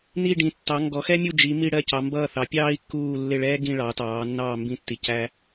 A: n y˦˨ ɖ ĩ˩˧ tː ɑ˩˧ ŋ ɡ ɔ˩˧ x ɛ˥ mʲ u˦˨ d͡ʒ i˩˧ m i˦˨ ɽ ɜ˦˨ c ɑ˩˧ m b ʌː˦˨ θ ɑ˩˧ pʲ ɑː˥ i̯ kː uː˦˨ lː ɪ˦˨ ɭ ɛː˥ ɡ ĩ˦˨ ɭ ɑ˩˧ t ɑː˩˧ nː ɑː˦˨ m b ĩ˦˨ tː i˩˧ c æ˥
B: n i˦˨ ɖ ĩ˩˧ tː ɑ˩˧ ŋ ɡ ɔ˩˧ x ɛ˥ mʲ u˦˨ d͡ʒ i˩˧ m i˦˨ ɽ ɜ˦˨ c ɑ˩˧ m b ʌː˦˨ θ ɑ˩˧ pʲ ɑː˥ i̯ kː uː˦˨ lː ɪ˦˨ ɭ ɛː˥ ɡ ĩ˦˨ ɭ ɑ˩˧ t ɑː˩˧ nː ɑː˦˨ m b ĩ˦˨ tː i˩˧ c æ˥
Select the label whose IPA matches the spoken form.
B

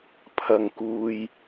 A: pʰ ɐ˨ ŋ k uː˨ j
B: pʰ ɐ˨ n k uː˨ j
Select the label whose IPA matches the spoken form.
A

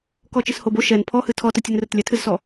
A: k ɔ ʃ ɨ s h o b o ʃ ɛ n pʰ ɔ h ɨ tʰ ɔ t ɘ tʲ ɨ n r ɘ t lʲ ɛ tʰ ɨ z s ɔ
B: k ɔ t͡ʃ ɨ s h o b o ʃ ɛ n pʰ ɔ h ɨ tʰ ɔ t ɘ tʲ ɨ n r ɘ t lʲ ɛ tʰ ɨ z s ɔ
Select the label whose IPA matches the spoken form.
B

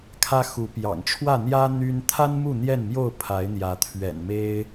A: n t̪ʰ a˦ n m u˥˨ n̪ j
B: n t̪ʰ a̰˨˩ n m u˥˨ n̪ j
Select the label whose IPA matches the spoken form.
A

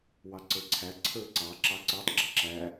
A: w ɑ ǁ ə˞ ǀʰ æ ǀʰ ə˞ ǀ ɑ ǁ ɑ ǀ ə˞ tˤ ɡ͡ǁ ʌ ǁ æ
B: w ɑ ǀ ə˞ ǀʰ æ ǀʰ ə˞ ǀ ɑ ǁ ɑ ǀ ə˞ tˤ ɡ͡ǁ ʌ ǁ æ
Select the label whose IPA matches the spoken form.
B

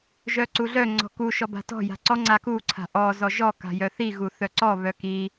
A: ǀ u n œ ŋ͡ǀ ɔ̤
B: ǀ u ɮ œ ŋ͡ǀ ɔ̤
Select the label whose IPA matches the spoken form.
B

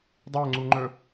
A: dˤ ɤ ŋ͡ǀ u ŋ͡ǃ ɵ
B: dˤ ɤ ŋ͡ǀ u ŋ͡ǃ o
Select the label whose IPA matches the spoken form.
A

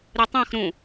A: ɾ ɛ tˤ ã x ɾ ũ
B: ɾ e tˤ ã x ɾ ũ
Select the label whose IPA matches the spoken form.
B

